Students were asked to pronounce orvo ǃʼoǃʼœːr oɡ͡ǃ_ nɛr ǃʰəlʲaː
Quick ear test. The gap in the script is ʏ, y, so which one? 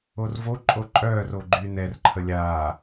y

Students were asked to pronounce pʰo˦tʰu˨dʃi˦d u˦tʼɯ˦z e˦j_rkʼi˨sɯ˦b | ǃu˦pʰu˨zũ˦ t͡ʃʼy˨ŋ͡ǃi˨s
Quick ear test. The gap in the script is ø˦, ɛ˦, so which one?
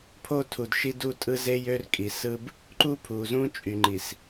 ø˦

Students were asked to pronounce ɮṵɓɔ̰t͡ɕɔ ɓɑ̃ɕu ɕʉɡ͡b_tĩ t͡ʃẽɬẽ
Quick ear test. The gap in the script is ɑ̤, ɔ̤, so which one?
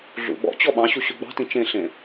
ɑ̤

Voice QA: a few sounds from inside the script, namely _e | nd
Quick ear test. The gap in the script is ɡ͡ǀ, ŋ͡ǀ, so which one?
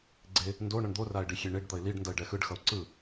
ɡ͡ǀ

